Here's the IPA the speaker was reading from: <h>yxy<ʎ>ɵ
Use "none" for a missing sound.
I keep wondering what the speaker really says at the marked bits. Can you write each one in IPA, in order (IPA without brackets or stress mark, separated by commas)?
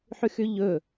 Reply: ħ, ʎ